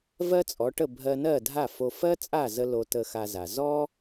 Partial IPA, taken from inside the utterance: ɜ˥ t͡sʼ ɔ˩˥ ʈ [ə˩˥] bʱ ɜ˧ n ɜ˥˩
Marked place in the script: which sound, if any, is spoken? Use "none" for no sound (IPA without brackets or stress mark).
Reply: ə˥˩